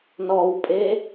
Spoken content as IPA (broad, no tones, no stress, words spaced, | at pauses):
nɔwpʼe